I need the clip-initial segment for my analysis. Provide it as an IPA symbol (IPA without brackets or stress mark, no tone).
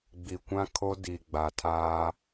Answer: ɡ͡b